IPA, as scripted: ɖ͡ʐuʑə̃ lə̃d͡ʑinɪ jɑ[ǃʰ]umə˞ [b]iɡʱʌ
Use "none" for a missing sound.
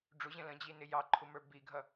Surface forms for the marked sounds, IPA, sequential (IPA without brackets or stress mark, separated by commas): ǃʰ, b